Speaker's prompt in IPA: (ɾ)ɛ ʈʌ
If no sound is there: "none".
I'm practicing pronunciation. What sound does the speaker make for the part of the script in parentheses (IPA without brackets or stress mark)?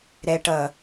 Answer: ɾ